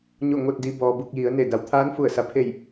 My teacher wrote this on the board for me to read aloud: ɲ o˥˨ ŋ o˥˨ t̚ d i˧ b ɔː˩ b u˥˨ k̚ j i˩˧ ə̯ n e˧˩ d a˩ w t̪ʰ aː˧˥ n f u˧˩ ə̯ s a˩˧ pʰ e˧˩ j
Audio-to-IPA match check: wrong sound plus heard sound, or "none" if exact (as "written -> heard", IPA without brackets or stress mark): none